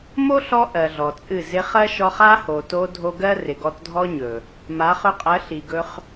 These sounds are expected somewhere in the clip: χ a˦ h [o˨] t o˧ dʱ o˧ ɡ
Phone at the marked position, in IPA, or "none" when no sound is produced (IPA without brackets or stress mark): o˨